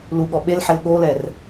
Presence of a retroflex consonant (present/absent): absent